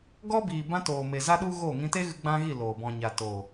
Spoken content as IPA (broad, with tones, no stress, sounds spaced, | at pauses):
ɡ ɔ˧ b iː˨ b ã˧ t oː˨ m e˨ z a˦ ɗ u˦ ɣ oː˦˨ ŋ ĩ˧ t e˦ ɣ ɨ˧ ɡ͡b ã˦ ɣ i˦˨ l oː˨ b ɔ̃˨ ɲ a˨ t o˨